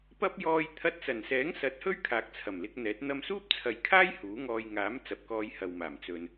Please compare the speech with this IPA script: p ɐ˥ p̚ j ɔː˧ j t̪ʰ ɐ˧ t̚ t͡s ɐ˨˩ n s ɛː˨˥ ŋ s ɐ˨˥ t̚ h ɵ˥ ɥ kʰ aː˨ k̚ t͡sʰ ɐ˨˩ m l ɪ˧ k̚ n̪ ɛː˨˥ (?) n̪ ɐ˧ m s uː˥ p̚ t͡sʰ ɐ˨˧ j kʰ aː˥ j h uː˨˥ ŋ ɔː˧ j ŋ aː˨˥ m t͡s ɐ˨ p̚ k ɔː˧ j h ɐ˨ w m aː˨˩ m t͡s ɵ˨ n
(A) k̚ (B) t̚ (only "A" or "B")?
B